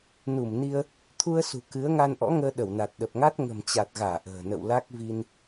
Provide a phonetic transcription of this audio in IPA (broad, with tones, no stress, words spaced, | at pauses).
nu˧˩mni˧ə̯ | t̪ʰu˧ə̯sṳ˨˩ kɨ˨˦ə̯ ŋa˧nʔɔ̰˧˥ŋəː˧ ɗə˧˩wna˨˩t̚ɗə˨˩p̚ŋa˦˥t̚ ŋə̤˨˩mt͡ɕa˨˩t̚ɣaː˧˩ ʔə̤ː˨˩nə̰˧˨w la˦˥k̚ vi˧n